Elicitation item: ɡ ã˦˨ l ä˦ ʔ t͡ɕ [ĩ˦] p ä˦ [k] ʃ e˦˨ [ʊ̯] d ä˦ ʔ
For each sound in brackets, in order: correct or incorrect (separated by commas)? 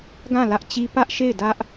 incorrect, incorrect, incorrect